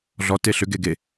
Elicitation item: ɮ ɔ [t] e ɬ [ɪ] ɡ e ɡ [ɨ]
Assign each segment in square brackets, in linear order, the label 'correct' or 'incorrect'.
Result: correct, incorrect: ʏ, incorrect: e

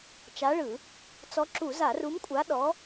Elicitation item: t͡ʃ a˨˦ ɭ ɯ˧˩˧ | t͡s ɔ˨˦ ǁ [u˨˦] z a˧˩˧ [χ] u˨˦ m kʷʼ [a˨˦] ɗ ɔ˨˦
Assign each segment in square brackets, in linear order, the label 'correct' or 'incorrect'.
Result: incorrect: u˧˩˧, incorrect: r, correct

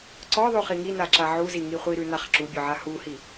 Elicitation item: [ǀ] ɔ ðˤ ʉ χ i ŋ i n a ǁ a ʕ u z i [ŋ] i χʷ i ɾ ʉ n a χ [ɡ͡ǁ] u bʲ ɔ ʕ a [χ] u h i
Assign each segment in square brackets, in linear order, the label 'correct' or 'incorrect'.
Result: correct, correct, incorrect: ǁ, incorrect: h

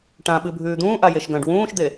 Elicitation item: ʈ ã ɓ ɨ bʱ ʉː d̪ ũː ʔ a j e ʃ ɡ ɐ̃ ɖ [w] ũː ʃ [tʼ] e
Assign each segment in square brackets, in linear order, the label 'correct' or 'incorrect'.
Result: correct, incorrect: d̪

